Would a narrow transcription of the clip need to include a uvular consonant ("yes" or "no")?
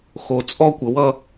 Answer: no